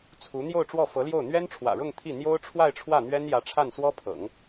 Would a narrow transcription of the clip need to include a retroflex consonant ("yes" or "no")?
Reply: yes